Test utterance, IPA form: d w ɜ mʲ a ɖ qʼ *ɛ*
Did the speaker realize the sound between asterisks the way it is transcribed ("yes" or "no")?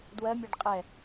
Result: yes